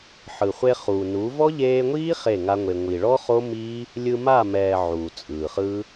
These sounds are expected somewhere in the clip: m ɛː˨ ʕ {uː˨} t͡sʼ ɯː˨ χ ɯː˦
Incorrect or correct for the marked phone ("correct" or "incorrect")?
correct